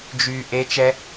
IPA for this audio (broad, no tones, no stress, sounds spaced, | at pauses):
d͡ʒ y ʔ e t͡ʃ ɛ